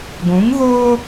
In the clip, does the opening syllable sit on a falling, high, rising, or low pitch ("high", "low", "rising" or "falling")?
rising